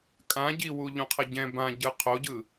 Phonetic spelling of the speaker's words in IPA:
kʼ ã ɟ i w u ʎ ũ qʰ ʌ ɟ ɛ̃ b ã ɟ ɯ qʰ o ɟ ɯ

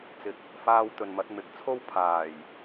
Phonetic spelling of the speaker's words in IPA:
t͡s ɪ˨ k̚ | f aː˧ w t̪ ɵ˨ n m ɐ˨˥ t̚ m ɪ˨˥ k̚ t͡sʰ o˥ w pʰ aː˨˩ j

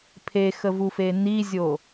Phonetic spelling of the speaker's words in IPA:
pʰ e x ə v u f e n i zʲ o

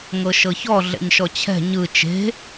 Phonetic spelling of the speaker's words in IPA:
ŋ ɤ ʃ ɤ ç ɔ ɮ ɛ̰ ɲ ʃ ɔ t͡ɕʰ ɛ̤ ɲ ɯ t͡ʃ e̤

